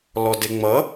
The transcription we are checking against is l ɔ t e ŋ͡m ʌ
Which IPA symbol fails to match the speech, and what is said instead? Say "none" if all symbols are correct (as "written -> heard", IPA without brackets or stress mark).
t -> d